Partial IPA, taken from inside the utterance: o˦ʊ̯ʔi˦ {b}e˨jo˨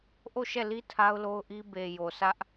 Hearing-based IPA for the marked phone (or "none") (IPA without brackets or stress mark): b